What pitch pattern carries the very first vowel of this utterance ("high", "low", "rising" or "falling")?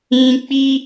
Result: high